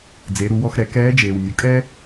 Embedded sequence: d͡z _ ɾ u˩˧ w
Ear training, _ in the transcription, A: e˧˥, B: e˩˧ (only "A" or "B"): B